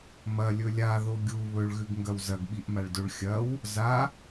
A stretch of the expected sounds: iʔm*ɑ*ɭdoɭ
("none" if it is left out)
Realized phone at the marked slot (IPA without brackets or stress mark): a